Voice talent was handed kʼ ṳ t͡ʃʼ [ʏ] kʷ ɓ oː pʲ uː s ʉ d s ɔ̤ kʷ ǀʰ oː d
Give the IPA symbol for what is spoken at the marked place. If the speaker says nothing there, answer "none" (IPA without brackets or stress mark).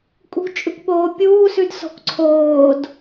ʏ